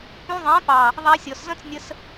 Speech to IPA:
p ũ˧ ðˤ ɛ̃˨˦ p ɑ˨ | ðˤ æ˧ sʲ ɔ˨ s z ə̃˦ t͡s nʲ ə˧ s

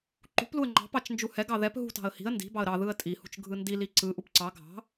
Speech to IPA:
ǃ ṳ p l u ə̯ ŋ͡ǃ ɑ̤ p ɑ t͡ʃ n d͡ʒ u h ɛ ɡ ɑ ð ɛ p ɦ ṳ t ɑ̤ ə̯ h i̤ ə̯ n d i̤ b ɑ ə̯ ɾ ɑ ð ɯ ə̯ tʼ i h ṳ t͡ʃ ɡʱ ɯ n d i l i ǀ ɯ ʔ u p ǀ ɑ ɡʱ ɑ̤

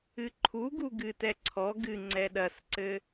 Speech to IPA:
ɨ ǃʰ u ɡ u ɡ ɨ t ɛ ǀʰ ɔ ɡ ɨ ŋ͡ǀ ɛ ɗ ɐ s ǀ ɘ

